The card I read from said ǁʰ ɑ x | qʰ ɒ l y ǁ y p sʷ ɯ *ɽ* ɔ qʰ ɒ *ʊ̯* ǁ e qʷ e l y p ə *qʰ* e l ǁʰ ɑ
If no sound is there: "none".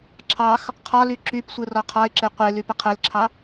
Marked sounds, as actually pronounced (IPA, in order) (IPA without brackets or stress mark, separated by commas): r, ɪ̯, qʰ